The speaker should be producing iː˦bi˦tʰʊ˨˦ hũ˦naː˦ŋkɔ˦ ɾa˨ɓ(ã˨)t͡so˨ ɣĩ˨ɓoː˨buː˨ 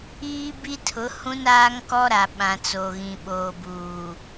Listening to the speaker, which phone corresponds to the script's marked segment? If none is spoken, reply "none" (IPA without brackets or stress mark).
ã˨